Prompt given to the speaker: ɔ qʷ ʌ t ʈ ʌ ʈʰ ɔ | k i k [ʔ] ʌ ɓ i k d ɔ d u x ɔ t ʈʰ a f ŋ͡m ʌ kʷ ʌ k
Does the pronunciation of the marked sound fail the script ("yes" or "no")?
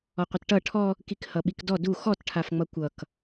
yes